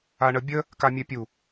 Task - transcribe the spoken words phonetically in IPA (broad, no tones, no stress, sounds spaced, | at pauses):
a ɳ ə bʲ ə | k a mʲ ɛ pʲ u